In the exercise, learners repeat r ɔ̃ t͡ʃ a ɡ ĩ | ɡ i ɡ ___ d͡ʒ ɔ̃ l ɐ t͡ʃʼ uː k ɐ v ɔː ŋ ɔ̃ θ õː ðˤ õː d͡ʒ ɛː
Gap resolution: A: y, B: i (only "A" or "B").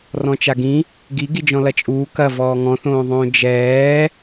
B